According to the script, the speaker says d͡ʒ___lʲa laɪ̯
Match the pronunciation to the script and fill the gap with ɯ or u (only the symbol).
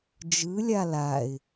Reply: ɯ